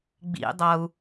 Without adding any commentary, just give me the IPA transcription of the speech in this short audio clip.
ɡ͡b ḭ dˤ ʌ u̯

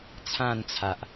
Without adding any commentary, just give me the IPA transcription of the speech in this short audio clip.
t͡sʰ ã˥˧ n t͡sʰ a˨ ʔ

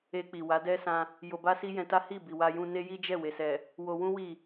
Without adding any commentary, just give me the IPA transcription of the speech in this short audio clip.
e˧ k͡p i˨ w a˨˦ d ɛ˦ s ã˧ | j o˧ b a˦ s i˦ j ɛ̃˧ t a˦ h i˦˨ b i˨ w a˧ j ũ˧ n e˦ j i˦ d͡ʒ ɛ˦˨ w e˨ s ɛ˨ | w o˧ w ũ˦ w i˦˨

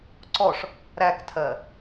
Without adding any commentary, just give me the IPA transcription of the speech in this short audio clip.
ǀ ɔ ʂ | ɾ æ k tʰ ɜ

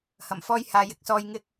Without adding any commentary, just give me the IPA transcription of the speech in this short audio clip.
h ɐ˨˩ m f ɔː˧ j h aː˨ j ɪ˨ k̚ s ɔː˧ j ŋ ɪ˧ k̚

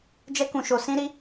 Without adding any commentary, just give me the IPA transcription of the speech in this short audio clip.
d͡ʒ ɛ˦ k ũ˧ ʃ o˧ s ĩ˦ ɾ i˦

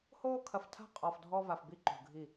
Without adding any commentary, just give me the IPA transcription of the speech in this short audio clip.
h oː˦ kʰ ɐ˨ f tʰ a̤˦ qʼ ɔ˨ f dʱ ɔ˦ v a˨ f b i˦ ǃ ṳ˨ ɡʱ i˦˨

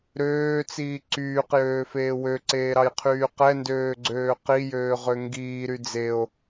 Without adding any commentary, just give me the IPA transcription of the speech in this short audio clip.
ɾ øː t͡s iː ǀ yː q j øː f eː w ø ǀ eː ɾ ɑ j qʰ yː q ɛ n d øː ɡ͡ǀ øː q i j øː ʁ ø ŋ ɡ iː ɾ y d͡z e o̯

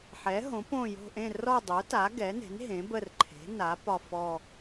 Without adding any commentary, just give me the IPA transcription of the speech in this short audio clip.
ħ ɛ˩˥ ɦ õ˩˥ p õ˦˨ j o̤˦˨ ʔ ẽ˦˨ r ɔ˦˨ dˤ o˩˥ t a˩˥ ɡ ɛ˩˥ n e̤˩˥ n ɦ ẽ˩˥ b ə˦˨ r ǃʰ e̤˩˥ n a˩˥ p ɒ˦˨ f ɔ˦˨

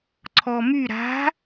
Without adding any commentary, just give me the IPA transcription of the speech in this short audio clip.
ǀʰ ɔ m y ɾ a̤

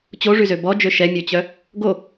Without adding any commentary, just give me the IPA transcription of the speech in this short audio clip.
t͡ɕ o ʐ y z ø b ɔ d͡ʒ ø ʃ ɛ mʲ ø t͡ɕ œ | ɡ o

